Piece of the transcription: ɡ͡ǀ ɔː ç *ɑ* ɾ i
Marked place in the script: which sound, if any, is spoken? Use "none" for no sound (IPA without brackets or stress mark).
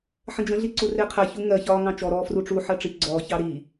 ɑ